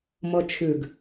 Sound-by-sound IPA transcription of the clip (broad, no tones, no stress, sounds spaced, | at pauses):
m ɤ t͡ʃʰ ʉ ɡ